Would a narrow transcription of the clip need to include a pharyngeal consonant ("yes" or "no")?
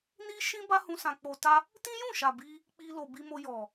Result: no